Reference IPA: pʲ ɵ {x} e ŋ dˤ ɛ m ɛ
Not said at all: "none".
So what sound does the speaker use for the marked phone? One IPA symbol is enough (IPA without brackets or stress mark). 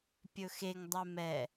x